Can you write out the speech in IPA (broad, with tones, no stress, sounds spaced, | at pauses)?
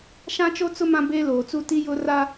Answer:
ʃ ã˦ t͡ʃ o˦ t͡s ʊ˦ m ã˦ b eː˦ l oː˨ t͡s u˦˨ t i˦ j ʊ˦ r a˦